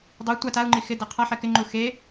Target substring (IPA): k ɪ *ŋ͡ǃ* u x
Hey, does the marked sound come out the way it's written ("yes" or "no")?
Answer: yes